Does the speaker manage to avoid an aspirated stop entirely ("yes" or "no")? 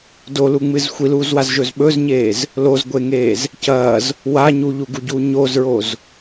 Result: yes